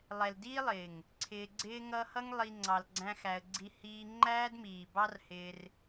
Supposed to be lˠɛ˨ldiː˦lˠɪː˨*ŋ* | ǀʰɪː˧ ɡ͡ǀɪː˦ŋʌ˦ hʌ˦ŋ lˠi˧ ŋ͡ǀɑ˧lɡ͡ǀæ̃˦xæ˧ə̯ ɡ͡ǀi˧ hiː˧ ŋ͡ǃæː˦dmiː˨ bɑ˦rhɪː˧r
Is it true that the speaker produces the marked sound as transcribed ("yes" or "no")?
yes